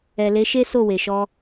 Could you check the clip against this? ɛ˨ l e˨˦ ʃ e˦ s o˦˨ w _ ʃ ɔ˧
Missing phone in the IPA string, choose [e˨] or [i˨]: e˨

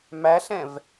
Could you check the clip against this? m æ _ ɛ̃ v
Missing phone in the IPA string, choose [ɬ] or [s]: ɬ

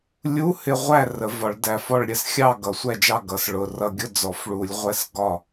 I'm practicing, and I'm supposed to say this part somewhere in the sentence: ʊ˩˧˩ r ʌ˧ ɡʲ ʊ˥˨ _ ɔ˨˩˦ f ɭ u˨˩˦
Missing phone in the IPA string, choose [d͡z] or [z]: d͡z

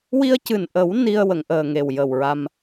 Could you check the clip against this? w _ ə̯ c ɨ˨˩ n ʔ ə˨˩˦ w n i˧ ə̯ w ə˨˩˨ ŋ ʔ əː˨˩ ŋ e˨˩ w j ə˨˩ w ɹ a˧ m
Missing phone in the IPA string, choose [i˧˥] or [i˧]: i˧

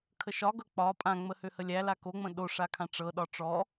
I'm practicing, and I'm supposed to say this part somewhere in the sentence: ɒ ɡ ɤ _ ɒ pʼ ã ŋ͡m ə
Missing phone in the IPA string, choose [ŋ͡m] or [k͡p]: k͡p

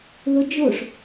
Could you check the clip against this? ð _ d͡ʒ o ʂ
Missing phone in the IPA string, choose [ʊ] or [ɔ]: ʊ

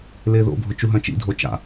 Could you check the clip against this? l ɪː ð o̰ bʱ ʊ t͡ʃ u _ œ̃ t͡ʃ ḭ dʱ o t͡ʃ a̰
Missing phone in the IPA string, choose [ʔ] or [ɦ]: ɦ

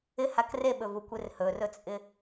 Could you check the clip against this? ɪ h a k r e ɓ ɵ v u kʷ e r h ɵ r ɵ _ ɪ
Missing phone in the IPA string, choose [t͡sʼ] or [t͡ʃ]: t͡sʼ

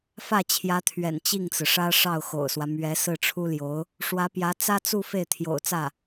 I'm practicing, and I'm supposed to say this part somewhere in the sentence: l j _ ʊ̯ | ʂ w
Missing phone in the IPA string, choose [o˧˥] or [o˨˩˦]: o˧˥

